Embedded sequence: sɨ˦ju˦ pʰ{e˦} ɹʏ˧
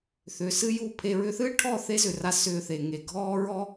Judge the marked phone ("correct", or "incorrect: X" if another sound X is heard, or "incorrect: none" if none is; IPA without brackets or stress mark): incorrect: e˧